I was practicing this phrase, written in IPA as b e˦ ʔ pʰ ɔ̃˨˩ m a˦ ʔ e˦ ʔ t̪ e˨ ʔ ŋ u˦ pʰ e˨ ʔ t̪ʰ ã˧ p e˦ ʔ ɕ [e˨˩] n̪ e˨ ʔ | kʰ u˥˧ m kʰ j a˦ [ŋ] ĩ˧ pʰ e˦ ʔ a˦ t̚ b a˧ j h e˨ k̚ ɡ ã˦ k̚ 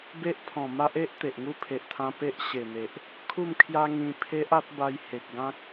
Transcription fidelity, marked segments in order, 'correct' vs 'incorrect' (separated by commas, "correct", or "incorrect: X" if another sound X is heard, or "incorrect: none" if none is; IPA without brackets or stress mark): correct, correct